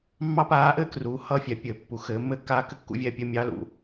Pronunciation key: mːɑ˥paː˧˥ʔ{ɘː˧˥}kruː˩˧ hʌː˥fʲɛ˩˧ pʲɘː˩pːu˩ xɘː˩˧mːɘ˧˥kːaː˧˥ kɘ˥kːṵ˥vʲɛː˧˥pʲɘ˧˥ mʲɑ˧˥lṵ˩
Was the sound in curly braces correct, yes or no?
no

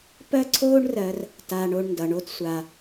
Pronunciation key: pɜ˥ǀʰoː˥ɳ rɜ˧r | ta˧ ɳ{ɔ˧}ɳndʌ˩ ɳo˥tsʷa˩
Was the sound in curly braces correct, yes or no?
no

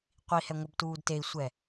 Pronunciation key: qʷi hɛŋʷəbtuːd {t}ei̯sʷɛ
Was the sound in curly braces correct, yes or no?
yes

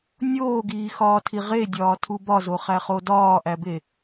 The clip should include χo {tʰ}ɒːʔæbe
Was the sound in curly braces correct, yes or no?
no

